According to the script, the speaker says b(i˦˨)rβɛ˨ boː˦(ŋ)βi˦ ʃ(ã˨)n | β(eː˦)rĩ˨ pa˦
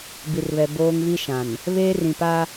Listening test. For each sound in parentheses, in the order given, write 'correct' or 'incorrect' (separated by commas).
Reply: incorrect, correct, correct, correct